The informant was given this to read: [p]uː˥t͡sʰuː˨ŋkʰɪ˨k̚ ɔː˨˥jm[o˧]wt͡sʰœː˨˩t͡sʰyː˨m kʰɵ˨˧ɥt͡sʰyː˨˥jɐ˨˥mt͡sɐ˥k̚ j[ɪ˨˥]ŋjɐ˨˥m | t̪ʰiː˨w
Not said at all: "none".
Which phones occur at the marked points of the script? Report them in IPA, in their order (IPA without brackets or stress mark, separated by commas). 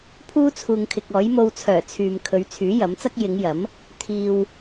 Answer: pʰ, o˧, ɪ˨˧